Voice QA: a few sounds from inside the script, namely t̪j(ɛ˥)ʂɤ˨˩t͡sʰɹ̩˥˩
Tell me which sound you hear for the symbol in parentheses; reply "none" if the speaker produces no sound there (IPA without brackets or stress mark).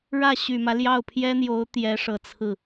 ɛ˧˥